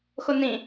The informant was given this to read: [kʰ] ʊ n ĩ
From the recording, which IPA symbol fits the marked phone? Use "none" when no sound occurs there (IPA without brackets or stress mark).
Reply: x